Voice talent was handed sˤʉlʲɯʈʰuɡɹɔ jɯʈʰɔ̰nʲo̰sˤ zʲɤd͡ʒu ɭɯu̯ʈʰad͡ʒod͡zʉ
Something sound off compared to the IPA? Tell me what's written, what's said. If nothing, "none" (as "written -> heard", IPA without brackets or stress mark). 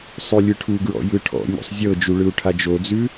ɔ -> ɔ̰